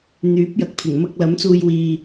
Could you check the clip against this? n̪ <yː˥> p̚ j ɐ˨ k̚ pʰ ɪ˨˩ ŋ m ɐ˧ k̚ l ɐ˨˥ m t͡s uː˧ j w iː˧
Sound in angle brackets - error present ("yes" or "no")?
yes